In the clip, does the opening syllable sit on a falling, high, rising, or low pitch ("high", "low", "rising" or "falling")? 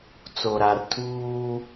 low